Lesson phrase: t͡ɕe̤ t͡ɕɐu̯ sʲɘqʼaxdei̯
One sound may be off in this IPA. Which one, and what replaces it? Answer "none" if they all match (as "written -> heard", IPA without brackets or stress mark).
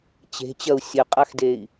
none